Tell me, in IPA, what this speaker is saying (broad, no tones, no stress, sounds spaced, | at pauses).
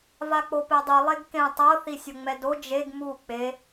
v a k͡p o p e dˤ ɯ lˠ e ɡ k ẽ tˤ ɤ θ i sʲ o ŋ͡m ɛ d o d͡ʒ e ɡ m u k͡p e